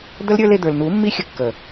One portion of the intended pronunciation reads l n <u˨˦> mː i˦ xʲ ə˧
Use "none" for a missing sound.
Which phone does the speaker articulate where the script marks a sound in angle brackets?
u˨˦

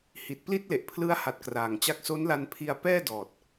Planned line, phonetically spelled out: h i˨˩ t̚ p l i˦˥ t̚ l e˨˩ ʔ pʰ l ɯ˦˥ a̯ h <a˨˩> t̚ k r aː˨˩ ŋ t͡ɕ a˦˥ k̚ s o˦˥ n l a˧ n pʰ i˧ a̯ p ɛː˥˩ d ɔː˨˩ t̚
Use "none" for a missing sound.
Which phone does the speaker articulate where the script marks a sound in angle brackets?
a˨˩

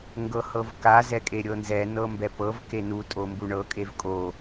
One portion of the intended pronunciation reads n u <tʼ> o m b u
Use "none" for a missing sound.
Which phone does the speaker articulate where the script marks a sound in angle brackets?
tʼ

